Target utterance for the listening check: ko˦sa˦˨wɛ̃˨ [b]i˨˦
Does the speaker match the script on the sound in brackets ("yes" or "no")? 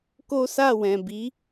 yes